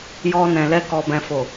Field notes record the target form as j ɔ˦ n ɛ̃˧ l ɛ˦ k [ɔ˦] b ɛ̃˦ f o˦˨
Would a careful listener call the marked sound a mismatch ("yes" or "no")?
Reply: no